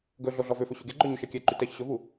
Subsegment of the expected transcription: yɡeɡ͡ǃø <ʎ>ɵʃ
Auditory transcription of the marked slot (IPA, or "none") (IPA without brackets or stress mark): ɲ